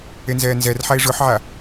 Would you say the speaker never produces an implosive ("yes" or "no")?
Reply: yes